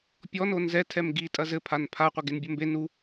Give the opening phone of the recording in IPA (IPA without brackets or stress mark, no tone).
pʲ